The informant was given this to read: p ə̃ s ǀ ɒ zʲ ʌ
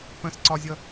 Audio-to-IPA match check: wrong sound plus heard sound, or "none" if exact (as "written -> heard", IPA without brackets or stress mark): none